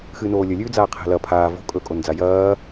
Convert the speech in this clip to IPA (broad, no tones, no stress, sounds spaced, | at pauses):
x ɨː n oː lʲ ɵ lʲ ʉː d͡z aː qʰ e̤ l ɐ pʰ aː v o̤ kʼ ɵ kʼ o n d͡z a j ɐː